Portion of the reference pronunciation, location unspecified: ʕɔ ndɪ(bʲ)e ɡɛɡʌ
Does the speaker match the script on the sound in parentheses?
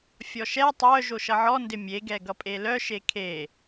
no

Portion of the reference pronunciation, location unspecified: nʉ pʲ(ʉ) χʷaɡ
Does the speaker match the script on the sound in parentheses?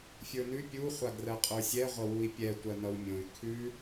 no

